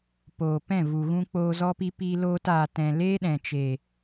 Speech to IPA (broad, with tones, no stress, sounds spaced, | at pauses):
p oː˨ p ɛ̃˦˨ v u˨ ɣ ũ˧ k͡p oː˧ z ɔ˧ p i˧ p i˧ l oː˧ t aː˨ t ɛ̃˨ l eː˦ ɗ ɛ̃˨ t͡ʃ eː˨